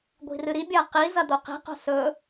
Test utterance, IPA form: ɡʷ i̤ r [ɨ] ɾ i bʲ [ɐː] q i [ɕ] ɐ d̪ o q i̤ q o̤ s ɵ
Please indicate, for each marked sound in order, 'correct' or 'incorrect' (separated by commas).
correct, correct, incorrect